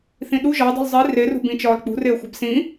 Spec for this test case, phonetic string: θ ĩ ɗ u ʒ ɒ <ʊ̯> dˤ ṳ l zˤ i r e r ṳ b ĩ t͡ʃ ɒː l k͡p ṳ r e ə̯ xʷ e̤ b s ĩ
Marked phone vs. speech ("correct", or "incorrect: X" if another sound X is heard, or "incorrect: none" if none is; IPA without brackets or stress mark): correct